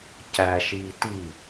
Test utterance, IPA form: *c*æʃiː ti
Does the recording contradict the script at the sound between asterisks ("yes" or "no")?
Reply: no